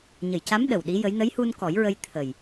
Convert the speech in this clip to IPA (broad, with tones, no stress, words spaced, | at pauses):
ɲə˨˩˨jca˧˥m ɗə˨˩wɗi˧˥jə˧˥j nə˧˥jhu˧n kɔ˨˩˦jɹə˧j t̪ʰə˨˩j